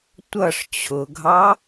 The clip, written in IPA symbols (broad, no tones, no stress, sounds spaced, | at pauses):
tʷ ʌ ʂ t͡ɕʰ ʊ ɡʱ ɑ